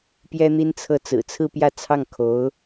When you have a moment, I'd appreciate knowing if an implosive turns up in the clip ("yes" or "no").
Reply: no